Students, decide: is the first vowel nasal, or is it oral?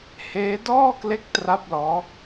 oral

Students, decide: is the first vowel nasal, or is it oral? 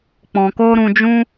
nasal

